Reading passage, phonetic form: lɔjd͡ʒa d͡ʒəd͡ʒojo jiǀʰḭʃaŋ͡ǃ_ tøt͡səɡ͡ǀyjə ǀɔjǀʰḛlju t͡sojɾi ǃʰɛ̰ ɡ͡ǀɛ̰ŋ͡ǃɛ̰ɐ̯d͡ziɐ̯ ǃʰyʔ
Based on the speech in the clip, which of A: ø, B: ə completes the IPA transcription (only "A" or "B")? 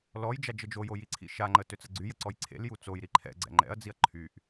B